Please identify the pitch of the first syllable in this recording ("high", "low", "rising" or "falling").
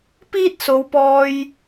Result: high